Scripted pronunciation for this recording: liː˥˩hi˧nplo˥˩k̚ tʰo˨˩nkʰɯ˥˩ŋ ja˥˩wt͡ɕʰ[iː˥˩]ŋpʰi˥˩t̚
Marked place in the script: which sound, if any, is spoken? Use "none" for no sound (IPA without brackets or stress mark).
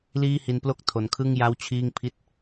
iː˥˩